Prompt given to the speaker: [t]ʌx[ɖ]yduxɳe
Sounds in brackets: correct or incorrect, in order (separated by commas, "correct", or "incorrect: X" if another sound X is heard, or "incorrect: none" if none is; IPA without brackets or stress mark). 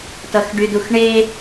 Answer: correct, correct